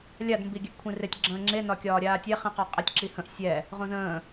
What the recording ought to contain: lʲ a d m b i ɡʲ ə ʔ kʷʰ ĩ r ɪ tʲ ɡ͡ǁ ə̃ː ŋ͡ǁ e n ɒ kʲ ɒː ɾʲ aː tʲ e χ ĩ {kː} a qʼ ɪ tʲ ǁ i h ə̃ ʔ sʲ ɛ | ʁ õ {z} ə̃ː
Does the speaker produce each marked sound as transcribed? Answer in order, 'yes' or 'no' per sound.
no, yes

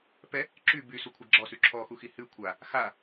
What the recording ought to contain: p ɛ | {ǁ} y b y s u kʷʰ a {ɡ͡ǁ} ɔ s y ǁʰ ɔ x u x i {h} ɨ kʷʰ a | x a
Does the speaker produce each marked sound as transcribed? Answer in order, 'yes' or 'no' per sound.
yes, yes, yes

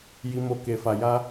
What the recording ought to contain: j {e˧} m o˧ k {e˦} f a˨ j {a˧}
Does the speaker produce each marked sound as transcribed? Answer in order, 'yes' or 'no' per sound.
no, no, yes

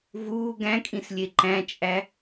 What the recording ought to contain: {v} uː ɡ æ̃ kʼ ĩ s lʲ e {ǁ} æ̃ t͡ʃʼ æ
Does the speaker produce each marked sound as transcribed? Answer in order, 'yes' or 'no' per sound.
yes, no

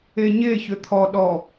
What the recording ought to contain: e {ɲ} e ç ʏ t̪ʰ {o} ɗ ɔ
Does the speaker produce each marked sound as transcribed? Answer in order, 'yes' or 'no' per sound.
yes, no

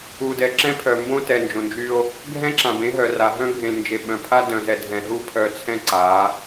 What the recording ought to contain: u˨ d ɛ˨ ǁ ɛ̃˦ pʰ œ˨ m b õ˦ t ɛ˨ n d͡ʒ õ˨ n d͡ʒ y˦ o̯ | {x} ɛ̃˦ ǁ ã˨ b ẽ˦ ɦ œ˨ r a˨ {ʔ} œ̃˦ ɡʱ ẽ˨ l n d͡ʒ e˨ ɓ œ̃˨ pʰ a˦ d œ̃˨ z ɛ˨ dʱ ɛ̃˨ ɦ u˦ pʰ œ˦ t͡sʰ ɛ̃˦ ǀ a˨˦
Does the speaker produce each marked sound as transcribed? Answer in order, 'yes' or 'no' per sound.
no, no

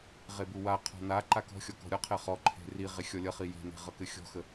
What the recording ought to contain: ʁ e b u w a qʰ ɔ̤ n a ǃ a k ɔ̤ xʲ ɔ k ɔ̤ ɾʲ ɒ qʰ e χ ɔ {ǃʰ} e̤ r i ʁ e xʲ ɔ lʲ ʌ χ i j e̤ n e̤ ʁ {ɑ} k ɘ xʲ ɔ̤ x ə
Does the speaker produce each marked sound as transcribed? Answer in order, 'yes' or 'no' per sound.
yes, no

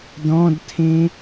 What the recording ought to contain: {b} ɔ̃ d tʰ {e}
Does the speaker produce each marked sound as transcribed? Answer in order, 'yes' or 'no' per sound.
no, no

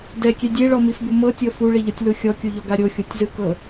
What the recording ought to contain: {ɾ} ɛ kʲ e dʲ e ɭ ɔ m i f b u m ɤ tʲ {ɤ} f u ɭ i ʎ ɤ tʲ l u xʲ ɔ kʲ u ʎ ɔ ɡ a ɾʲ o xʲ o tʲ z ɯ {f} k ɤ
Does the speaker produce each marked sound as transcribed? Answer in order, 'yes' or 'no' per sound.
no, yes, no

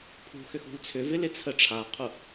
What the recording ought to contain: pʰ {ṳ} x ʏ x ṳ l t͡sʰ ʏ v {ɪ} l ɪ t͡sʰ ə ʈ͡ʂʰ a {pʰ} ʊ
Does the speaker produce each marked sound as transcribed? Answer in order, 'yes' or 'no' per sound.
yes, yes, no

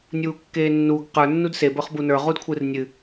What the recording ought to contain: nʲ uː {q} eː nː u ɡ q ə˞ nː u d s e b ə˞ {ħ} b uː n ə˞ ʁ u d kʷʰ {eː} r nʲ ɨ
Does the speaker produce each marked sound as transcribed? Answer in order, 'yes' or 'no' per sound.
no, no, no

